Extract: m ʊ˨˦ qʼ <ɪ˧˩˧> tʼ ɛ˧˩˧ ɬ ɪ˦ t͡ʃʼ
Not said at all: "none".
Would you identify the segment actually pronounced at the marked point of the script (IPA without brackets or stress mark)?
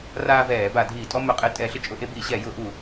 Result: ɪ˧˩˧